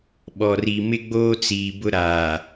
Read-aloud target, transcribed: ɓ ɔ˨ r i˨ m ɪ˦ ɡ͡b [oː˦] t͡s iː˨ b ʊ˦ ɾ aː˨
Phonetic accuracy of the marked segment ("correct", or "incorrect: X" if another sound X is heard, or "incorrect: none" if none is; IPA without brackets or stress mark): correct